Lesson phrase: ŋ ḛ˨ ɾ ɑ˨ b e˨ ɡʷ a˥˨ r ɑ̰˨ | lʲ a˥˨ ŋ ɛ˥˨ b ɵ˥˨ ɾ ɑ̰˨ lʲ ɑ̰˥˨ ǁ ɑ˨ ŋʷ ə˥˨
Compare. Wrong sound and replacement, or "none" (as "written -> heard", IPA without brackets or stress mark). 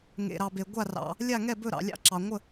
none